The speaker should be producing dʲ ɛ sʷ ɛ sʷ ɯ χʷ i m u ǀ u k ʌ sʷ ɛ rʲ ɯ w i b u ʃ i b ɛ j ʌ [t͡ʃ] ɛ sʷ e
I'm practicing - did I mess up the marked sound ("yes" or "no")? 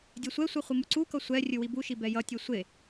yes